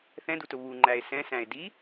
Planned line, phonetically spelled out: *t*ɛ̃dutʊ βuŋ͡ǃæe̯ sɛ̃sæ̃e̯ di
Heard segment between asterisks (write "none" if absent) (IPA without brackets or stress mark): θ